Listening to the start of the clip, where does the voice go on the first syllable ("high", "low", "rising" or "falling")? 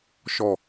falling